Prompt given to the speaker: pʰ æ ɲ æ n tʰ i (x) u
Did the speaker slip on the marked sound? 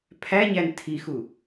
no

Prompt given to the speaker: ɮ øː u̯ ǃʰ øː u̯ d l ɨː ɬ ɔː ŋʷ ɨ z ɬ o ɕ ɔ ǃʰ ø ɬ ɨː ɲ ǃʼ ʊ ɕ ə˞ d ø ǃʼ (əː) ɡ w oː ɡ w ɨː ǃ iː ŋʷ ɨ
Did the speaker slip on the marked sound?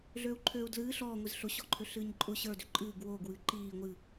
yes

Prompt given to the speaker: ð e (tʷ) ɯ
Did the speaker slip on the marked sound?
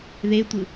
no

